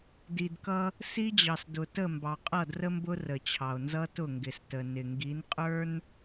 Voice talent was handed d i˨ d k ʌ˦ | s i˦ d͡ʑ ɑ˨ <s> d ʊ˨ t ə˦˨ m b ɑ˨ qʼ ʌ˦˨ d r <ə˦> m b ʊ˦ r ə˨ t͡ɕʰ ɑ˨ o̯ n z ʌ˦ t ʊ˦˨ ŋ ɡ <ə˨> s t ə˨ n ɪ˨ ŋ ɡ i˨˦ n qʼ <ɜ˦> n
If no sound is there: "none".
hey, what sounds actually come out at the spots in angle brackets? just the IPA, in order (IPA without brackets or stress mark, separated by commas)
s, ə˦, ɪ˨, ə˞˦